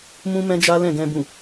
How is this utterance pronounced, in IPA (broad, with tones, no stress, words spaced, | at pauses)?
mũ˦ mɛ̃˦d͡ʒa˦lɛ̃˦˨ɡɛ̃˧ bũ˨